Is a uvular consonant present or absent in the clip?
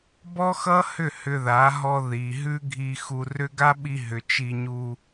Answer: absent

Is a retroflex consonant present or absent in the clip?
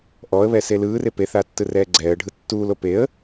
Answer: present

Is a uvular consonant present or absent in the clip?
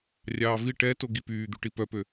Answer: absent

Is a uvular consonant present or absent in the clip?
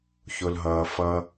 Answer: absent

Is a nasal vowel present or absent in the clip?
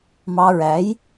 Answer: absent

